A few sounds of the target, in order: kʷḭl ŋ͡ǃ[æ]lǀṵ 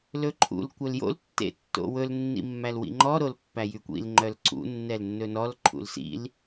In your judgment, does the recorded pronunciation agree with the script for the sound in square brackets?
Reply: no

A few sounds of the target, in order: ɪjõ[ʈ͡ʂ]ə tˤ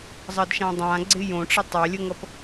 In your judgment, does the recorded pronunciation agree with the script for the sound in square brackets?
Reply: yes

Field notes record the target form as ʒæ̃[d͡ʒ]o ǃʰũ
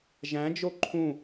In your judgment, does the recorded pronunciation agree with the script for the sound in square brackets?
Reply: yes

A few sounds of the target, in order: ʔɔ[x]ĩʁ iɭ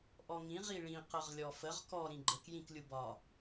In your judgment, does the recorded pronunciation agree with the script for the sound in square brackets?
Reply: no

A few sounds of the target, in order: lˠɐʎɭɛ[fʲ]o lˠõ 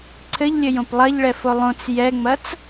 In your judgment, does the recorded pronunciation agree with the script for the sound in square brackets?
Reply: no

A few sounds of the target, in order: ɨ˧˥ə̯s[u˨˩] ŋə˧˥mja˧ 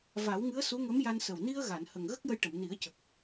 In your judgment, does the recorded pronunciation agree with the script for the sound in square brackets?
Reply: no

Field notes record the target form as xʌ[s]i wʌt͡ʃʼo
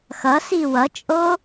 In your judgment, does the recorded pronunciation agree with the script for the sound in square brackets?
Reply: yes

